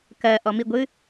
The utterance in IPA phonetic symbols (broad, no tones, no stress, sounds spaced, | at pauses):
k ɜ ʔ ɔ m i ɡʷ ɨ